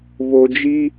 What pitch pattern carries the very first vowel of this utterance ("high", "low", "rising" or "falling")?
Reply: low